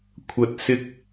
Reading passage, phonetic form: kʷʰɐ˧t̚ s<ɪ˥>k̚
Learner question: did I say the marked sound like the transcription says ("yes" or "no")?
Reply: yes